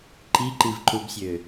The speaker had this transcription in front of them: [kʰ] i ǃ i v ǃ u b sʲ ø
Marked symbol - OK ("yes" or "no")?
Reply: no